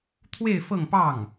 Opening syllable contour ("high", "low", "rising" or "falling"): falling